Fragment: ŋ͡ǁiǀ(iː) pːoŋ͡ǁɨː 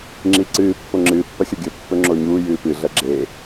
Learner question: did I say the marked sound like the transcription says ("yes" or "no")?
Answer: no